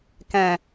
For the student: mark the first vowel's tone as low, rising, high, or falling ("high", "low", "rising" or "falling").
low